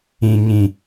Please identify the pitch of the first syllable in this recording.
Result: low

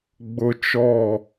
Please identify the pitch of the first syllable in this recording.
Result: high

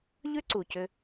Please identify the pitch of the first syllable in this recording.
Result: high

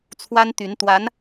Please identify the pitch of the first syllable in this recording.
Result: high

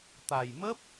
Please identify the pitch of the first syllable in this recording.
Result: low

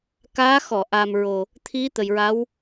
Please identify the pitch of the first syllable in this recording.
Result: rising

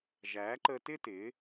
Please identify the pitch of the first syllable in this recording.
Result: rising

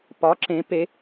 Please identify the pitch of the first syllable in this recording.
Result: rising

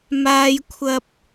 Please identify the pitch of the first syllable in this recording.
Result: high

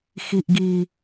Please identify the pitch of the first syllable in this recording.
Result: low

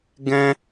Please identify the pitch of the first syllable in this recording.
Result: high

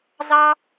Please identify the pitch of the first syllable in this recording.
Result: high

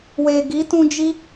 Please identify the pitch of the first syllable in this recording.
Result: low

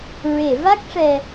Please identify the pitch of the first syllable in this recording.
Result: low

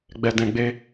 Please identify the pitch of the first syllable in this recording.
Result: low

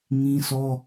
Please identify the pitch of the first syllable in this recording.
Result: high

